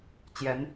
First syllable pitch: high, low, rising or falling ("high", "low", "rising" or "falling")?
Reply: rising